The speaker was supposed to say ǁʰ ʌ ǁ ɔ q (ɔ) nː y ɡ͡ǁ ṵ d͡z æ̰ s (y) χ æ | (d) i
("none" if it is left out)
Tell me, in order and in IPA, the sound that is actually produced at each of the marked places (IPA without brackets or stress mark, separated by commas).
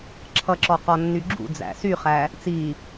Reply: ɔ, y, t͡s